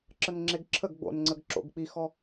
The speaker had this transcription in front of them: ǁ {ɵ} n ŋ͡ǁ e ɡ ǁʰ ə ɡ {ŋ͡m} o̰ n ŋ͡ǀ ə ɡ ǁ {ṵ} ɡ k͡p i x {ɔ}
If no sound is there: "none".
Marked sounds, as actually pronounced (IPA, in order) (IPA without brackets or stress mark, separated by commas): ə, ɡ͡b, o̰, ɔ